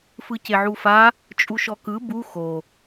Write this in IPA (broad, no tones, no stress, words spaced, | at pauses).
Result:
fɯceʕufa | t͡ʃʼuʃɔkɯ bu xo